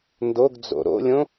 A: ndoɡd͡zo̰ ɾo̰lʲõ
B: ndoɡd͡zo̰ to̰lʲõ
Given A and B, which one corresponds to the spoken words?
A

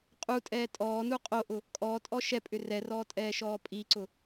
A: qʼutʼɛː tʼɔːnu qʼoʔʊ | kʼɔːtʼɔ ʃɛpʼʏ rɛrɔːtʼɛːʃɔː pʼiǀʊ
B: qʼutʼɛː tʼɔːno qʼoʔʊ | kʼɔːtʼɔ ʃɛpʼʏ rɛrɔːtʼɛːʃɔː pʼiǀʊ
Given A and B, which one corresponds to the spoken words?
A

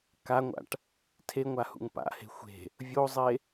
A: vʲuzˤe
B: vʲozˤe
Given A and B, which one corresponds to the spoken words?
B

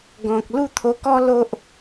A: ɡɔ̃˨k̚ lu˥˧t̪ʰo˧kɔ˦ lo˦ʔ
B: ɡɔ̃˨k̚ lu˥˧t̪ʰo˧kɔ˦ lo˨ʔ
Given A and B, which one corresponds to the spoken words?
A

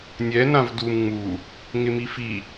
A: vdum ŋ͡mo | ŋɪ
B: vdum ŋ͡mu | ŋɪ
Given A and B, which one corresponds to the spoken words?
B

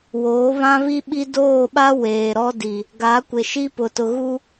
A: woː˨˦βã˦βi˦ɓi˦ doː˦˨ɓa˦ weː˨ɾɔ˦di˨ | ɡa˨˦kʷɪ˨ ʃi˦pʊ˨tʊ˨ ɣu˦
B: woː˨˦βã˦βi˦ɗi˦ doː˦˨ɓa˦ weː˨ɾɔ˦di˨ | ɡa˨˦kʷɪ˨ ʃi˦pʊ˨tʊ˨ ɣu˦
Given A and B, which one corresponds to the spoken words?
A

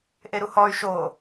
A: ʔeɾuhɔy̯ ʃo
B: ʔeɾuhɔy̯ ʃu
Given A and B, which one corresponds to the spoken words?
A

